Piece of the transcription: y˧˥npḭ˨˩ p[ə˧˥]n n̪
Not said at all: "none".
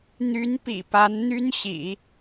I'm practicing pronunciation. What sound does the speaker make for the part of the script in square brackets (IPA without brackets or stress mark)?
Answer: a˧˥